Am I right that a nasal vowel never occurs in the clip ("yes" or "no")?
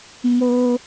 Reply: yes